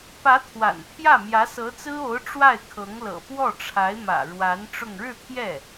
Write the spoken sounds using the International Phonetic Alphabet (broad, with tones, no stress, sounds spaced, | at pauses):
p ä˧˥ t̪ʰ w a̰˨˩ n pʰ j ä˥˩ m j ä˧˥ s ɤ˧˥ t͡s ɹ̩˥ o˧˥ ʊ̯ ʈ͡ʂ w a˥˩ ɪ̯ kʰ ɤ˧˥ ŋ l ɤ̰˨˩ p w ɔ˥˩ ʈ͡ʂʰ a˧˥ ɪ̯ m ä̰˨˩ ɻ w a˧˥ n ʈ͡ʂ ʊ˥˧ ŋ ɻ ɻ̩˥˧ t̪ʰ j ɛ˥˩